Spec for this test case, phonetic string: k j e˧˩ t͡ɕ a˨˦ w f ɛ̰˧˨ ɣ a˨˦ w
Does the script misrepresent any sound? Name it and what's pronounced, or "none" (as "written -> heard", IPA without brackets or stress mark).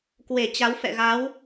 j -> w